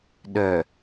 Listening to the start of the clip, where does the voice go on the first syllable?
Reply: low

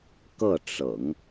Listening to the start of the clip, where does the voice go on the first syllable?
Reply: falling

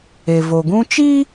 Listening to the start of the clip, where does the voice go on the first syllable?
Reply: low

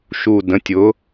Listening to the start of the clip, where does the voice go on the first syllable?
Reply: low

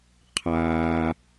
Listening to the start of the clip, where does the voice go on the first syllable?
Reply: low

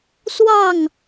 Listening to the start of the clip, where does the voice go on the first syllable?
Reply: falling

